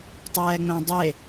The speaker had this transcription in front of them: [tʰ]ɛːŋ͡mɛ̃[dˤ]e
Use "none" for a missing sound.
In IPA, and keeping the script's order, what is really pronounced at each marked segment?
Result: tˤ, dˤ

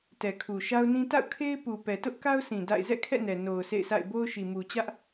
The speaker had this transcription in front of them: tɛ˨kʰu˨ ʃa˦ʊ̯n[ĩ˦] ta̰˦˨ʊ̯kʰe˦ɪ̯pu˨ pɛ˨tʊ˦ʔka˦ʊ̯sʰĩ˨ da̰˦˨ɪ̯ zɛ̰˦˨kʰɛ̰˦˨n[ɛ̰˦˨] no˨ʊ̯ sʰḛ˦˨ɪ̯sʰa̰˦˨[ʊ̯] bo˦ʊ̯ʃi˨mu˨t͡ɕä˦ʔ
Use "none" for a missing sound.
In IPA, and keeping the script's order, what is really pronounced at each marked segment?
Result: ĩ˦, ɛ˨, ɪ̯

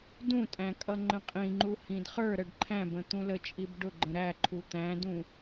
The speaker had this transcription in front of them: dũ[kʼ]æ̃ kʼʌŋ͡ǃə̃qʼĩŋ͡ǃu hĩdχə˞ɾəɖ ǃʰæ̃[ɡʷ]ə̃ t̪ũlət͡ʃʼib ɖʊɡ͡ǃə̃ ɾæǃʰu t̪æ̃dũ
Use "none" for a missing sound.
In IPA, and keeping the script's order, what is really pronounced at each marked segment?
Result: tʼ, b

